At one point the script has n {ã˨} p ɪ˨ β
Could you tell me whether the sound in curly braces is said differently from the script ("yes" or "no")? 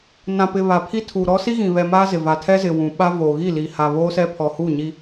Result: no